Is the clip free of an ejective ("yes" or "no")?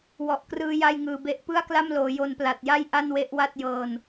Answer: yes